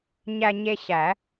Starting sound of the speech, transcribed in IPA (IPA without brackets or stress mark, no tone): ɲ